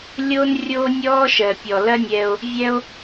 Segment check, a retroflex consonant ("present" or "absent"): absent